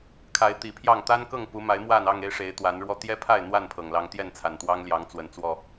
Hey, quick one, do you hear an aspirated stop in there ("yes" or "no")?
yes